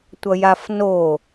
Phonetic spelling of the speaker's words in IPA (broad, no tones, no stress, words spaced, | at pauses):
tʷʌjafno